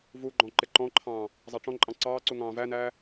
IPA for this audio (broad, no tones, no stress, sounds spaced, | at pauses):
v u ɡ͡ǃ ɔ̃ ǃ ɪ ǃ ɔ̃ ǃʰ ɑ̃ː | zˤ ɑ ʈ͡ʂ ɔ̃ ǃʼ ɑ̃ ǀ ɑː ǀ u ŋ ɑ̃ː v æ n æː